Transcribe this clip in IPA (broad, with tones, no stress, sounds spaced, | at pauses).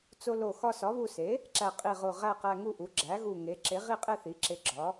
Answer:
t͡s o˧ l o˧˩ x ɒ˧ s ɒ˩˥ β u˧ s e˩˥ | ǁ æ˧˩ qʼ i˧˩ ʁ o˧˩ ʁ æ˥˨ q æ˧ ŋ u˥˨ ʔ u˩˥ ɡ͡ǁ æ˩˥ ɣ u˧˩ ŋ e˩˥ ǁ e˩˥ ʁ i˥˨ qʼ e˥˨ θ i˩˥ ǁ e˧ ɡ͡ǁ ɒ˩˥